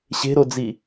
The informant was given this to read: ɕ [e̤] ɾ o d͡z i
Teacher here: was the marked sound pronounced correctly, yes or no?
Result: yes